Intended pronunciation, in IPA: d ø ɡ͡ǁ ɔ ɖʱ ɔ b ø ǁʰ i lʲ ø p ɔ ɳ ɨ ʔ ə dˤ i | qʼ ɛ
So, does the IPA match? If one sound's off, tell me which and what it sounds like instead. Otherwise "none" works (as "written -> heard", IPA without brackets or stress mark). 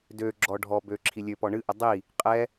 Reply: none